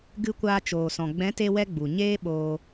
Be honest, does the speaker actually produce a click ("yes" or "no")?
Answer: no